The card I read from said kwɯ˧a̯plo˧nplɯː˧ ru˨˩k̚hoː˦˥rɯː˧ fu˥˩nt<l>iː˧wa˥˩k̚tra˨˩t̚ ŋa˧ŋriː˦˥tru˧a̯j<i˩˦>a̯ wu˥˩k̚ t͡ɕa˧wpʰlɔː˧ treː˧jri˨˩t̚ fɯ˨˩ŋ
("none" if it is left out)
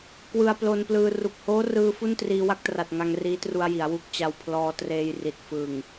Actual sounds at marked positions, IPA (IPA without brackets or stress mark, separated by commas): r, i˩˦